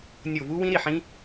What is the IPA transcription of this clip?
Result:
nʲ o˧˩ v u˦˥ w ĩ˦˥ ɾ i˥˩ ħ ĩ˦˥

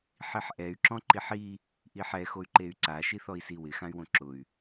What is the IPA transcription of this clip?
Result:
ħ i ħ ʔ ɛ y̯ ǁ ɔ̃ ǃ i ħ i | ʔ i ħ ɛ x o y̯ ǃ e y̯ ǀ a ʃ i θ ɔ i̯ s i w ɪ x ã y̯ w õ ǁ ʊ y̯

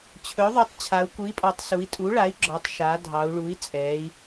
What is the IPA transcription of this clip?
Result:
t͡ɕʰ ɵ˩˥ ðˤ u˩˥ tˤ t͡ɕʰ a˩˧ u̯ k u˩˥ i̯ pʼ ɔ˩˧ tˤ s u˩˧ i̯ tʼ u˩˥ ɭ a˩˥ i̯ ɡ͡ǁ ɔ˩˧ tˤ ʃ a˩˧ dʱ ɑ˩˧ u̯ ɭ u˩˥ i̯ t͡sʼ ɛ˩˧ i̯

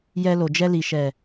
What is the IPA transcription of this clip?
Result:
j ɛ˧ l o˨ d͡ʒ ɛ˧ l i˨ ʃ ɛ˨

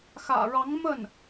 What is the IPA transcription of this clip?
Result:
x ä̰˨˩ ɻ ɑ˧˥ ŋ m ə˥˩ n

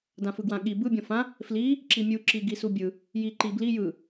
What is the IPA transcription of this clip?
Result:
d ã f ɯ ɡ w ã ɠ i b ɯ bʲ ɔ̃ f ã | f l i | ǁ i mʲ u ǁ i ɡ i s u bʲ ɯ | j i ǃ i b l i j ɯ

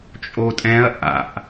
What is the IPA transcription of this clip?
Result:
t͡ʃʼ o tʼ ɛ̃ ɐ̯ ʔ a̰ ʔ

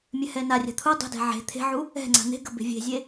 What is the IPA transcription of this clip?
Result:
mʲ ɛ h ɛ n a rʲ a̤ t̪ʰ u dˤ e̤ d ɛ̤ ʕ e̤ t̪ʰ e̤ ʕ u | ɛ̤ ŋ͡ǀ a̤ n̪ e̤ ɡ ə b e̤ vʲ e̤ zʲ e

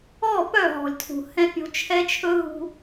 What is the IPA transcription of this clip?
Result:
ɔ˦˨ p œ˦˨ ɦ ɔ̤˨ lʲ tʰ ṳ˨ h ɛ̃˦ pʲ o̤˦ t͡ʃʰ ɛ˦ t͡ʃʰ ɵ˦ ɦ ṳ˦

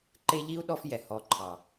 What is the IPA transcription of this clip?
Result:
ǃ e˥ ʎ i˥ u̯ ɗ ɔ˦ f j ɛ˩ h ɔ˨ ǃʰ ɑ˩

